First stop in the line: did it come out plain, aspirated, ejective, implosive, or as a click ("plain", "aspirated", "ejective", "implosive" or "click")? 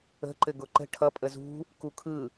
click